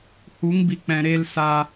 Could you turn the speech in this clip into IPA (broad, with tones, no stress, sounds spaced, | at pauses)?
h u˨˦ ŋ b i˨ k͡p ɛ̃˨ ɾ e˧ l s a˧